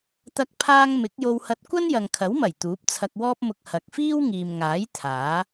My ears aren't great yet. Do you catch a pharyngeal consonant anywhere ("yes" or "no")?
no